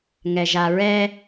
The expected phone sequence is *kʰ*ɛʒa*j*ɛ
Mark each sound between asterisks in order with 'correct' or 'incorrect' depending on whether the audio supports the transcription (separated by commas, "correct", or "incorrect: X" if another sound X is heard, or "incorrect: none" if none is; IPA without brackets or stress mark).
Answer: incorrect: ŋ, incorrect: ɹ